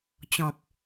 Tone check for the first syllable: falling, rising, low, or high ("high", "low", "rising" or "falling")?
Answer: low